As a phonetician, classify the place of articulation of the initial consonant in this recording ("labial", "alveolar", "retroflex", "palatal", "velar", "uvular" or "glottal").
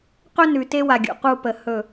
uvular